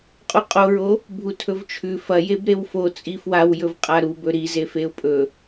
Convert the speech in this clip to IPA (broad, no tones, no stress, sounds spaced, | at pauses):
qʼ u qʼ o ɹ o | bʱ u tʰ ɵ v t͡ʃʰ ʉ f ɐ j e b ɾ e w f o t͡sʼ i f w a w j ɵ v qʼ a ɾ u b ɵ ɾ i z e f e ʊ̯ pʼ ɵ